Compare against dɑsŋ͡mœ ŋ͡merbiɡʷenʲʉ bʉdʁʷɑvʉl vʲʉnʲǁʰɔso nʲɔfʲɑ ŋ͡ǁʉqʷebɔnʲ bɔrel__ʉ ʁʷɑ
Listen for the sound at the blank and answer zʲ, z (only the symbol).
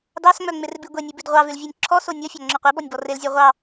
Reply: zʲ